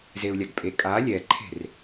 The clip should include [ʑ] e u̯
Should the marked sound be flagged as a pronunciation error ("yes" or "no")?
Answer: yes